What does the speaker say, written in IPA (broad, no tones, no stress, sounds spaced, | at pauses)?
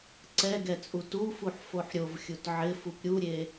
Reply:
ǀ ɛ ɡ ɛ t͡sʼ u t u f u ħ f o ħ ɾʲ o v xʲ u t ʕ ɪ f u p ɾʲ u ɾʲ e